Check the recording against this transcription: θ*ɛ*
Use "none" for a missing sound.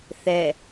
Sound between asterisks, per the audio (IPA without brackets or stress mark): ɛ